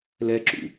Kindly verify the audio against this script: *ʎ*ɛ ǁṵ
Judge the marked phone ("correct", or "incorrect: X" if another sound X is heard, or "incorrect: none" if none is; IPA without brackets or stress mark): incorrect: l